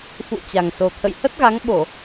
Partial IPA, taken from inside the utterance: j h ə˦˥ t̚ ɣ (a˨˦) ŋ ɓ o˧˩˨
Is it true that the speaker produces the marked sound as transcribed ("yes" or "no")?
yes